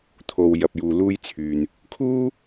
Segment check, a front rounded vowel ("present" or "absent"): present